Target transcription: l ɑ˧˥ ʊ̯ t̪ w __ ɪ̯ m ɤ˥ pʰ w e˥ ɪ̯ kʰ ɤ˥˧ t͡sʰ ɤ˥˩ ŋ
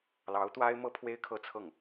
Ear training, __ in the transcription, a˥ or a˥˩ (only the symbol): a˥